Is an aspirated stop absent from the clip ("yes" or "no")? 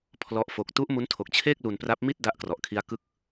no